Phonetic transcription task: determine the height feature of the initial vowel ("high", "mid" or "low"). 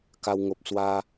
low